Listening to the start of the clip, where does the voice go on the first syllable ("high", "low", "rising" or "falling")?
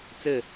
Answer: falling